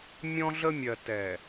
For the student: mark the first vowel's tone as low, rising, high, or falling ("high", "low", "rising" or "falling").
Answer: high